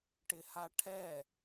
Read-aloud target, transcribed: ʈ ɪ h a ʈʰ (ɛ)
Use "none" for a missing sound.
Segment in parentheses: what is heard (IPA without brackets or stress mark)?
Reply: ɛ